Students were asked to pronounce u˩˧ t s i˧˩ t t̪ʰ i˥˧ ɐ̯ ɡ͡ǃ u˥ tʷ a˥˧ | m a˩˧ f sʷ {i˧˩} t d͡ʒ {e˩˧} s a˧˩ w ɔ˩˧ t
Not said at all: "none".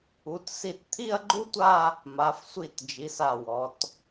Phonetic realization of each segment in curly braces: i˧˩, i˩˧

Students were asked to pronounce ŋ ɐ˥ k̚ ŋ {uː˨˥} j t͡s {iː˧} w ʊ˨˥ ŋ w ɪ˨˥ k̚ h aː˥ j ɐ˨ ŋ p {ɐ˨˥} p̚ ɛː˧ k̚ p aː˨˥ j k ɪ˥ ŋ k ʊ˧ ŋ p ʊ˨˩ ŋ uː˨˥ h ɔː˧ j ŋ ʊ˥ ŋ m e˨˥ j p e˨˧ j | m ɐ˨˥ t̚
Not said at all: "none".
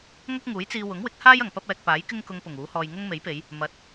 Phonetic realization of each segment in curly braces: uː˨˥, iː˧, ɐ˥

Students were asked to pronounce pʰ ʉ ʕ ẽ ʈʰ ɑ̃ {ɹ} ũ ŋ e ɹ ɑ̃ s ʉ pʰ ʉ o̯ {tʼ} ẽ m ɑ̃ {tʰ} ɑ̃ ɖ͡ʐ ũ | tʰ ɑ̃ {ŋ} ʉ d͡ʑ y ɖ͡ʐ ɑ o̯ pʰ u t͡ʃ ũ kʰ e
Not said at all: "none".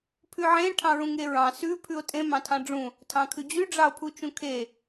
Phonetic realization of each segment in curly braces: ɹ, tʼ, tʰ, kʰ

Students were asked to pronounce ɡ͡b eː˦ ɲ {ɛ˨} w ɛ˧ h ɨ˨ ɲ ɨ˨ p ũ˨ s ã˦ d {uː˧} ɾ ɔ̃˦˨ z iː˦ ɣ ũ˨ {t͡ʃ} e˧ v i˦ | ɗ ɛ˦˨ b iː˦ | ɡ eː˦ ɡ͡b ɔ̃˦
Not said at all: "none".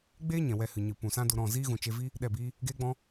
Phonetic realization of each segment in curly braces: ɛ̃˨, u˧, t͡ʃ

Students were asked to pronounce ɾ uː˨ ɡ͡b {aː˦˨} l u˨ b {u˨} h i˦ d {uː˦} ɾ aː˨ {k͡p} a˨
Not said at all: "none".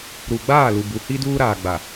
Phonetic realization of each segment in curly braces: aː˦˨, u˨, uː˦, ɡ͡b

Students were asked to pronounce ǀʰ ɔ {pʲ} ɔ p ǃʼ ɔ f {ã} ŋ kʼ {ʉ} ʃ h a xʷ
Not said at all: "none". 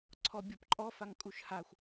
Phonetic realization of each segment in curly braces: bʲ, a, u

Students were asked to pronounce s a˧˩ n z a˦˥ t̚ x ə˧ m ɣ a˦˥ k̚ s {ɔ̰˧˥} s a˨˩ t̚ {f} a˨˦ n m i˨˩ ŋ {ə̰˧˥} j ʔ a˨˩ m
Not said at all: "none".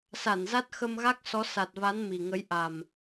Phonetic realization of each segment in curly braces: ɔ˨˦, v, ə˨˦

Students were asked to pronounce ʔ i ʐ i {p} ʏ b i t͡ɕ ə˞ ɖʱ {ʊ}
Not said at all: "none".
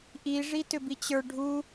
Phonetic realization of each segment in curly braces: t, u

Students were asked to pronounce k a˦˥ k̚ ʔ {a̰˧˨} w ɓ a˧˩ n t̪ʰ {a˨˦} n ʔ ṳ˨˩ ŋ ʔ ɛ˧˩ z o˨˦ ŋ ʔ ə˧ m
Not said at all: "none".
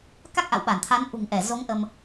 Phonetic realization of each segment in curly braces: a̰˧˨, a˨˦

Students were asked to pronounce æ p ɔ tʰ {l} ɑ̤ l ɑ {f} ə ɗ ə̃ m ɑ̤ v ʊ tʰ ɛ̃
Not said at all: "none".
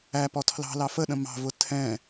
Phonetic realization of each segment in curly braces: l, f

